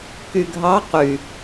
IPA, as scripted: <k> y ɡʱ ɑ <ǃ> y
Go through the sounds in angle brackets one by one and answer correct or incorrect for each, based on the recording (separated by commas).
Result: correct, incorrect